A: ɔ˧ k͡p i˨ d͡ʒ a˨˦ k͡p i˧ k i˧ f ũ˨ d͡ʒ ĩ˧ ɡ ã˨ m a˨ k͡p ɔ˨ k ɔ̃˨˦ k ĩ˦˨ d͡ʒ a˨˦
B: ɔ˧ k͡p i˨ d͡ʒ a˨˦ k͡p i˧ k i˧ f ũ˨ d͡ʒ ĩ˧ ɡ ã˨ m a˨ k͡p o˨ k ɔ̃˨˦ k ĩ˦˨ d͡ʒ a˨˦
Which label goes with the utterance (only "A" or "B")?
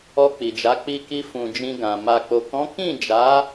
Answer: B